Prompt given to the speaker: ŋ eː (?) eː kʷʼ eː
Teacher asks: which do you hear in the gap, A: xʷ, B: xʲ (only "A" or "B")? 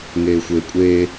A